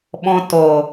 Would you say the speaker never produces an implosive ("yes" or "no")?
no